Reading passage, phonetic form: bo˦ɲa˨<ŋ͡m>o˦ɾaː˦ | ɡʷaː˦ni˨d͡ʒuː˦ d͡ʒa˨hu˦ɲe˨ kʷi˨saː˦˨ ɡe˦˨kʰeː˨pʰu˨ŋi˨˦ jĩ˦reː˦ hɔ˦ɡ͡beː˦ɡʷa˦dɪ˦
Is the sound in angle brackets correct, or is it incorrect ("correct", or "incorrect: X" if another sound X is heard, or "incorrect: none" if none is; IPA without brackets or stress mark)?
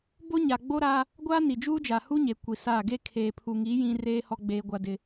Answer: incorrect: ɡ͡b